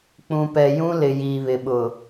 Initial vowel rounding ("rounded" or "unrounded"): rounded